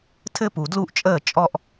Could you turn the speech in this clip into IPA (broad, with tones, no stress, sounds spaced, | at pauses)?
tʰ ɘ˦ p u˨ d l u˦ ʔ t͡ʃʼ əː˦˨ t͡ʃʼ ɔ˦ ʔ